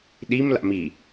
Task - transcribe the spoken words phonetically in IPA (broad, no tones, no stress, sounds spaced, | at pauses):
ɗ i m l a̰ m i